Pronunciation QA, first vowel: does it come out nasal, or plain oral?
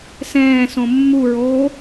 nasal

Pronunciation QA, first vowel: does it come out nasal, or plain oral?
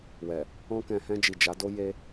oral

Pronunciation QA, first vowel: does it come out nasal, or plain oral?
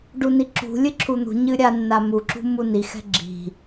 oral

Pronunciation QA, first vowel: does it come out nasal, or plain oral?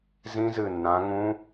nasal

